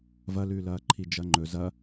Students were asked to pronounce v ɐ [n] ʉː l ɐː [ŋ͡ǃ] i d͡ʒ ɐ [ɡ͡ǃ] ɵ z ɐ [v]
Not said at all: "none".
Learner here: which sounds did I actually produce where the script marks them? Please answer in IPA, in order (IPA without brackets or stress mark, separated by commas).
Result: l, ǃʰ, ŋ͡ǃ, none